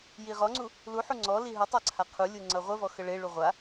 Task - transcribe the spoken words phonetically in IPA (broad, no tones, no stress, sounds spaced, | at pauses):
j i ʁ ɔ ŋ͡ǀ u | l u ħ u ŋ͡ǀ ɔ l i ɦ ə tˤ a ǀʰ a qʰ u lʲ u ŋ͡ǀ ʌ ʁʷ ə v ɔ x ə ɭ e ɭ u ʁʷ a